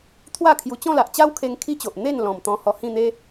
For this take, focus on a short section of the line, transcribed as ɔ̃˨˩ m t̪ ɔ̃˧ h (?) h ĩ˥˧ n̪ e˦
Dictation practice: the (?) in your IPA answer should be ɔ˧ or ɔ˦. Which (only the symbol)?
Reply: ɔ˧